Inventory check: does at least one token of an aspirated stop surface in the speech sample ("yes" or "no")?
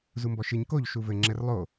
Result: no